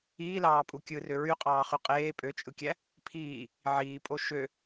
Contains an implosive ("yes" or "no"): no